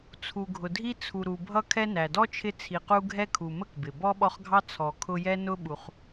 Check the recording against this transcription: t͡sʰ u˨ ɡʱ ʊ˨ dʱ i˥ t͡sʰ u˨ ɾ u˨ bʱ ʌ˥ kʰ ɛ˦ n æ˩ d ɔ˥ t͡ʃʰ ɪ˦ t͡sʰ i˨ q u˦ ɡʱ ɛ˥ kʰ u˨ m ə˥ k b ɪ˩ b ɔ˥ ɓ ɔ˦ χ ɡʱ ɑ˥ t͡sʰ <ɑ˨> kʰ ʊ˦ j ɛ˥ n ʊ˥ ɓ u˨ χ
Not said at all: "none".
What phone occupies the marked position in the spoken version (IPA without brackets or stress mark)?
ɔ˨